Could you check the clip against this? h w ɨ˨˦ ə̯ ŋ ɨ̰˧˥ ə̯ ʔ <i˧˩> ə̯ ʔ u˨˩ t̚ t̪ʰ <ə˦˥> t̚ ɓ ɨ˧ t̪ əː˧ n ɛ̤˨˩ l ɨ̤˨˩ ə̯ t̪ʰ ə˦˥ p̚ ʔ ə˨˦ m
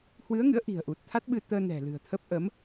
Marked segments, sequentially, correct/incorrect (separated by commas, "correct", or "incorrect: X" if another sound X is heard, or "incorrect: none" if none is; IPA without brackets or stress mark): incorrect: i̤˨˩, incorrect: a˦˥